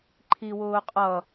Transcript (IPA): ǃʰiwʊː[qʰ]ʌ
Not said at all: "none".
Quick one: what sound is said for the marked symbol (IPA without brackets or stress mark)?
qʼ